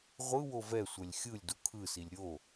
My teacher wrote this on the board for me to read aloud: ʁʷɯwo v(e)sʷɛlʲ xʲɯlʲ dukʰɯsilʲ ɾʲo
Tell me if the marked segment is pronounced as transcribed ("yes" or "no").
no